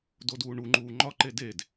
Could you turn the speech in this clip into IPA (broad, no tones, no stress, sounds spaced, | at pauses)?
d o d uː ɳ u ŋ͡ǃ uː ŋ͡ǃ ɒ ǃ e d e d